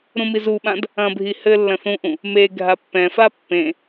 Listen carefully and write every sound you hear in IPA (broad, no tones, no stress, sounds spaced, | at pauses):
ɾ ũ m i z u ɓ ã d | ɐ̃ bʱ i h ɘ lː ɐ̃ θ ũ ʔ ũ | m e ɡʱ a pː ɛ̃ f a pː ẽ